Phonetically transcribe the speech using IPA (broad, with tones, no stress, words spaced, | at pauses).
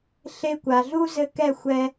ɬe˧kʷa˨ɮu˦zɘ˧ kɛ˦˨xʷɛ˧